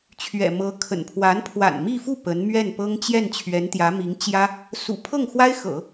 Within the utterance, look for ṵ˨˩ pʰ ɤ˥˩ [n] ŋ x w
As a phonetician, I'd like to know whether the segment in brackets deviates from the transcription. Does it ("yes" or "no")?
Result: yes